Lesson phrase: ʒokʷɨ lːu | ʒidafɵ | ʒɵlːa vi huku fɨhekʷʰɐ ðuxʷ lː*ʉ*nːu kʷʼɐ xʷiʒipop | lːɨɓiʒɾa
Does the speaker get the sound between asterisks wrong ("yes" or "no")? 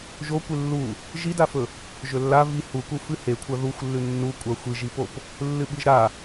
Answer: no